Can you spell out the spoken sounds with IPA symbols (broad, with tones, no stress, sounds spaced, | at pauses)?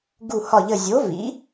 ɡ u˧˩ h ɒ˧˩ ʎ ə˧˩ zʲ o˨˥ v ḭ˨˥